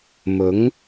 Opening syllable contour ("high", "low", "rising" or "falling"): rising